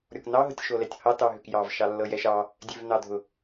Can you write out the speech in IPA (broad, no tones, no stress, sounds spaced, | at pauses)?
ɾʲ ɔ k n ɑ ɦ ʊ tʲ ʃ o l ɛ tʲ h ɑ t ɑ ɦ ø k j ɑ v ʃ ɑ lː ɤ j ɛ ʃ ɑ | dʲ ø v n ɑ dʱ ʊ